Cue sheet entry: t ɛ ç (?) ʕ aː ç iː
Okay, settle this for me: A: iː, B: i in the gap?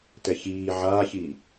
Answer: A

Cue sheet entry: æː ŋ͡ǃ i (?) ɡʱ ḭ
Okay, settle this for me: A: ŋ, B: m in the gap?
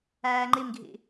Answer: B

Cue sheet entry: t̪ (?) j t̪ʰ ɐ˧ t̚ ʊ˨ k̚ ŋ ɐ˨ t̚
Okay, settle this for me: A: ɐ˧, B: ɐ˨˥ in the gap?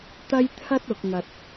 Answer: A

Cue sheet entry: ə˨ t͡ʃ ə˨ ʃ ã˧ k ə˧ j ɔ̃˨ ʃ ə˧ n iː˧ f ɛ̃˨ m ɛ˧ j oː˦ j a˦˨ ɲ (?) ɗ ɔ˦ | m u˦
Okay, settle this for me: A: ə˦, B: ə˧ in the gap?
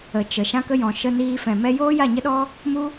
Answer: A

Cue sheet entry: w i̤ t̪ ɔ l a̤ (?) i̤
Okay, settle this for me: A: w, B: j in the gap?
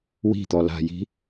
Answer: B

